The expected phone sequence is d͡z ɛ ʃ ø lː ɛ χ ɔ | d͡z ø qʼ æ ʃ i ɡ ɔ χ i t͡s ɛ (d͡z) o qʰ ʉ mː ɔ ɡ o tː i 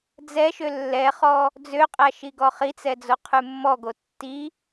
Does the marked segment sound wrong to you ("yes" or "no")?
no